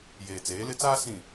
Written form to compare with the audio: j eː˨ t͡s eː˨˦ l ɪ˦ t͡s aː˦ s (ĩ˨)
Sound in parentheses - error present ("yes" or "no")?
no